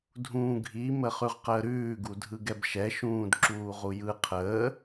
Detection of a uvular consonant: present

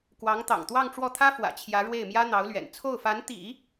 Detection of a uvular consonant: absent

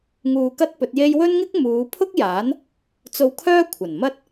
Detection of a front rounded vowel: present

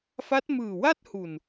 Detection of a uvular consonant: absent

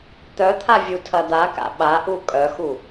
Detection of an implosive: present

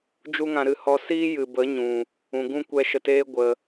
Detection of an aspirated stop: absent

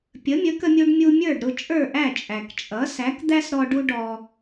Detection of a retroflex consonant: present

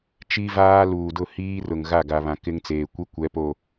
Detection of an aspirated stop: absent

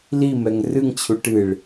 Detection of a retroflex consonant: present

